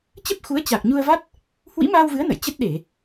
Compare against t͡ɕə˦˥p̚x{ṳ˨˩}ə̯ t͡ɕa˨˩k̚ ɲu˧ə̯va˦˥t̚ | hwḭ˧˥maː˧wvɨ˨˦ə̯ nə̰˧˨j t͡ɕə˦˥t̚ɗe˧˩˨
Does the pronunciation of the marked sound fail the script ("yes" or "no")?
yes